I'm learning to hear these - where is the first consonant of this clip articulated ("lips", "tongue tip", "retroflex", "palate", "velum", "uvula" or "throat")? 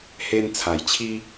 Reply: throat